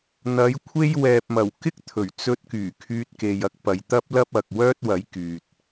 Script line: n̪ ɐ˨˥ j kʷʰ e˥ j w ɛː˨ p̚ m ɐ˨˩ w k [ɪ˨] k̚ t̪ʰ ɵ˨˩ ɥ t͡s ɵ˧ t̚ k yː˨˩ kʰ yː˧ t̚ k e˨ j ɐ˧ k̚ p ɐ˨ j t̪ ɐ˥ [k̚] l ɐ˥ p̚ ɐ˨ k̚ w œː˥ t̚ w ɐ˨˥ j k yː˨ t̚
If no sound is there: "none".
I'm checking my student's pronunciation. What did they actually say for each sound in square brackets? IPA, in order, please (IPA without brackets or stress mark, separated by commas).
ɪ˥, p̚